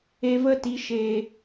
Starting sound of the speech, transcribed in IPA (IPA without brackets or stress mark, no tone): e